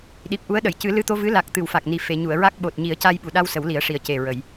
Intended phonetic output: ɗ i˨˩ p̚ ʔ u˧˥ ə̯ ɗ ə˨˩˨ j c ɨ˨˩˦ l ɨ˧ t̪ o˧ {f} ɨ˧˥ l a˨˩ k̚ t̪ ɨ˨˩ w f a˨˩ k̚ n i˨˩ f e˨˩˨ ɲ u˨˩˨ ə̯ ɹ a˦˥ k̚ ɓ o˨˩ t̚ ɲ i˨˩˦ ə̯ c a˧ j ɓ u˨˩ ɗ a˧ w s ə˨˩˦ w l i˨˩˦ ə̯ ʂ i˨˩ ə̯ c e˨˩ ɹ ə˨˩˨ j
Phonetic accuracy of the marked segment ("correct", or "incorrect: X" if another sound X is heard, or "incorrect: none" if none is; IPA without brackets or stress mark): incorrect: v